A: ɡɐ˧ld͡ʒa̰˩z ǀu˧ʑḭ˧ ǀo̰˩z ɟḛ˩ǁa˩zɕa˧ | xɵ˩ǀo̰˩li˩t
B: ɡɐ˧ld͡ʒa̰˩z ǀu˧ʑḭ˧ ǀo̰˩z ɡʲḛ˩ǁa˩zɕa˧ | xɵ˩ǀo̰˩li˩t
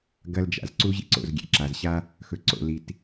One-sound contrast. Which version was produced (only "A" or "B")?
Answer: B